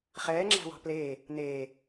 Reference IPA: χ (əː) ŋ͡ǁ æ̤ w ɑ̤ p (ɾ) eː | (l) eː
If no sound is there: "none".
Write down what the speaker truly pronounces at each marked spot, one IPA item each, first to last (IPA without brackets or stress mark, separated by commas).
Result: ɛː, l, n